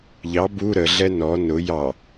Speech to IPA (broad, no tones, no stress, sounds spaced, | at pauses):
ʎ ɑ b u ɾ ə ɮ ɛ n ɔ n ʊ j ɑ